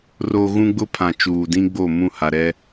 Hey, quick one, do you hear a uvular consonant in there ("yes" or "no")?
no